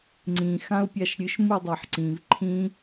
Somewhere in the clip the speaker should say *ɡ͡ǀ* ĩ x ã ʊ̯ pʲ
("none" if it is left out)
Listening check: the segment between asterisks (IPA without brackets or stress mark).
ŋ͡ǀ